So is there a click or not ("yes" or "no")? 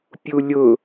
no